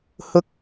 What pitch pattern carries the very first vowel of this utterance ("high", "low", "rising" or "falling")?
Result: high